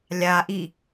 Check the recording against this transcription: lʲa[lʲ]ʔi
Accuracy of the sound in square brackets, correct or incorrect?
incorrect